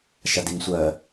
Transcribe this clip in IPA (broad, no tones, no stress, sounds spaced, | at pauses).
ʃ a d i ŋ sʷ ɜ